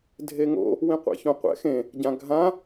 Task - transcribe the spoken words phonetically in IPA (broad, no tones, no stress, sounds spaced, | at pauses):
dʱ e ŋ o̰ | w ĩ qʷ ɛ̰ ç õ qʷ ɛ̰ x ẽ | ɟ ã ɡʱ ã